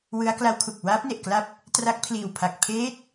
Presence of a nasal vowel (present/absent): absent